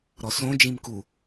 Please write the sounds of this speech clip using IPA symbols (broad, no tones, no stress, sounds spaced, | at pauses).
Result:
ɾ ɔ s õ d͡ʒ ĩ m k u